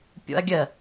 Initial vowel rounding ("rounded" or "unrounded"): rounded